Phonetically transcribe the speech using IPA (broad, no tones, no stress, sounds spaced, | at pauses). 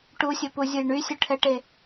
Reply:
ʈ u sʲ ʊ p u zʲ ʊ j ɳ y sʲ ʊ ʈʰ ɛ ʈ e